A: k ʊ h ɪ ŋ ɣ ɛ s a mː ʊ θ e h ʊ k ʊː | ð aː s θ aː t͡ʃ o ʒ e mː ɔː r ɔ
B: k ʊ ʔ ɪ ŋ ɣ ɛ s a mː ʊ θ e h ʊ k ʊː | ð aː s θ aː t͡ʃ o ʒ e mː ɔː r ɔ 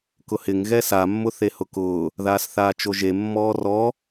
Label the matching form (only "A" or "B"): A